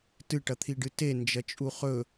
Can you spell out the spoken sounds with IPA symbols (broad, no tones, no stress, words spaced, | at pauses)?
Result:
tɨʈɐt̪ʰiɖɨ te nd͡ʒɐt͡ʃʼuχɵ